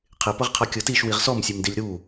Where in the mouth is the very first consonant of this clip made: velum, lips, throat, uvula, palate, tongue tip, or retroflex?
uvula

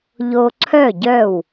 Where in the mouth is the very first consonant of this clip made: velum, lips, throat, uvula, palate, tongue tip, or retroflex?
palate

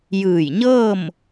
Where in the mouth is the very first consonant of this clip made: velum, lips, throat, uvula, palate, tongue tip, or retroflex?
palate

